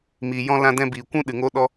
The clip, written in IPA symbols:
m iː˨ j ɔ̃˧ l ã˧ d ɛ̃˧ b iː˨ kʷ ũ˦ ɗ ɨ˨ ŋ o˦ ɗ ɔ˦

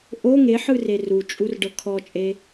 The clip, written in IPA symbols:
ʔ o ŋ e ħ ɯ r e r u t͡ʃʼ u r ɖ ɤ kʰ ɔ t͡ʃʼ e

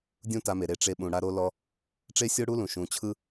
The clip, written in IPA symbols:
dʲ ũ˦ t a˧ m e˨ ɾ e˧ ʈ͡ʂ e˧ ɓ ũ˨ ɽ a˦ ɾ o˦ l ɔ˦ | ʈ͡ʂ e˦ sʲ o˦ ɽ u˦ l ũ˨ ʃ ũ˨ t͡ɕʰ ɯ˦

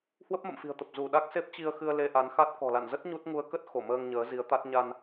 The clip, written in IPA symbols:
h w ə˦˥ p̚ m ə̰˧˨ m f i̤˨˩ ə̯ t̪ ə˨˩ p̚ z u˧˩ ɗ a˦˥ k̚ s e˦˥ p̚ t͡ɕ i˧ ə̯ x ɨ˧ ə̯ l e˧ ʔ a˨˦ n x a˦˥ t̚ k ɔ̤˨˩ l a̰˧˨ n z ə˦˥ t̚ ɲ u˦˥ t̚ ŋ u˧ ə̯ k ə˦˥ t̚ x o˧˩ m əː˧ ŋ ɲ əː˨˦ z i˨˦ ə̯ t̪ a˦˥ t̚ ɲ a˧ n

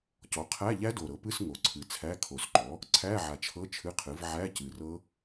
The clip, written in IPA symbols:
c ɔ˩˥ qʰ æ˧˥˧ ʎ æ˦˥ d o˨˩ ɾ ɤ˩˥ p ɨ˧˥˧ s ŋ o˨˩ ǀʰ ɨ˨˩ t͡sʰ æ˧˥˧ kʰ o˨˩ s ǃ ɔ˩˥ | ǀʰ æ˧˥˧ ʕ a˨˩ t͡ʃʰ ɤ˧˥˧ t͡ʃʰ ɨ˧˥˧ qʰ ɨ˩˥ v ʕ æ˧˥˧ c ɨ˨˩ r ɤ˦˥

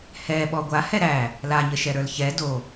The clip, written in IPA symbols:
h ɛ ɓ ɔ ɡʷ a h ɛ ɾ æ | l a ɲ ə ʃ ɛ ɾ ə˞ l ç ɛ d o

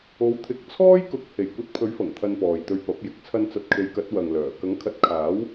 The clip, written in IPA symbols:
o˨˧ w t̪ʰ ɪ˨˥ k̚ t͡sʰ ɔː˥ j k ʊ˨˥ k̚ h e˨˩ j kʷ ɐ˧ t̚ pʰ ɵ˨˥ ɥ f ɐ˨˩ ŋ t̪ʰ ɐ˧ n p ɔː˨ j t̪ ɵ˧ ɥ p ɐ˨˥ p̚ j ɪ˨ k̚ t͡sʰ ɐ˧ n t͡s ɐ˨˥ t̚ kʰ e˨˧ j k ɐ˨˥ t̚ w ɐ˨ ŋ l œː˨˩ k ɐ˨˥ ŋ kʰ ɐ˨˥ t̚ kʰ aː˨˥ w

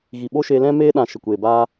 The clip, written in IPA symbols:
ɣ i˨ ɓ o˦ ʃ e˧ l ɛ̃˦ m eː˧ ɗ ã˨ ʃ ə˨ kʷ eː˨ b aː˧

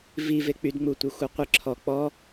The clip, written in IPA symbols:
v i v e k͡p y d ŋ͡m u tʷ ɛ xʷ œ qʷ e ǁʰ ɔ k͡p ɔ

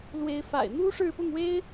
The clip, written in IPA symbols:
l w e˨˦ ɪ̯ f a̰˨˩ ɪ̯ n̪ u˦ ʂ ɻ̩˥˨ p ʊ˥˨ ŋ w e˦ ɪ̯

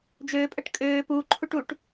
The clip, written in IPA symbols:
d͡ʒ øː pʼ ɜ ʈ kʼ øː p uː ǃʰ u ʈ u ʈ

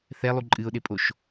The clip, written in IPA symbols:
θ ɛ lˠ u ǃʼ ɨ ʊ̯ ɗ e pʼ o ʃ

